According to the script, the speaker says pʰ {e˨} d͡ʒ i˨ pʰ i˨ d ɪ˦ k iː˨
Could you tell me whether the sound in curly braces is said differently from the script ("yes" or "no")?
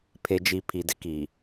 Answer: no